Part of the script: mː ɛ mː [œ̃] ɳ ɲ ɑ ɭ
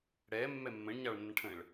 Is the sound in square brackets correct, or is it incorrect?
incorrect